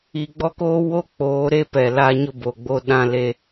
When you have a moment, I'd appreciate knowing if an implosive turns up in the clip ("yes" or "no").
yes